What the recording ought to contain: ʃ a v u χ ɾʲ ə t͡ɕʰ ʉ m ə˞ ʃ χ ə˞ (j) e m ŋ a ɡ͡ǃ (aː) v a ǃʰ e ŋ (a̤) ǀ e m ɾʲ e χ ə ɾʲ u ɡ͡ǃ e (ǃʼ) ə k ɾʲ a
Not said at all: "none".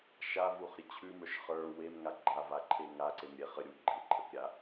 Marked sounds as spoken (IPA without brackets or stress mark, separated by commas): w, a, a, ǃʼ